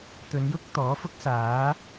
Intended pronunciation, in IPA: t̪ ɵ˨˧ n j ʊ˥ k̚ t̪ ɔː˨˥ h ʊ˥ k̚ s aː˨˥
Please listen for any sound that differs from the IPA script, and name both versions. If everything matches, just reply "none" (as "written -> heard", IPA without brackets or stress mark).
h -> f